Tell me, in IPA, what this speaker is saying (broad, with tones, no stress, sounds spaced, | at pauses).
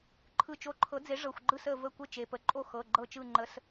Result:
ǃʰ ɯ˧˩ t͡ʃ o˧˩ ǃʰ ɤ˨˥ d͡z e˨˥ ʐ ɤ˩˧˩ xʷ ɡ͡ǃ ɯ˥˨ s ə˧˩ v ə˥˨ kʷ ə˥˨ t͡ʃ e˩˧˩ p ə˩˧˩ ǃʼ o˥˨ x ɤ˩˧˩ ɡ͡ǃ ɤ˧˩ t͡ʃ ɯ˧˩ ŋ͡ǃ ə˨˥ s